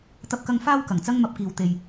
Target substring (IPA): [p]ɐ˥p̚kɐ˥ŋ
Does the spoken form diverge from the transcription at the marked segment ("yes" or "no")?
yes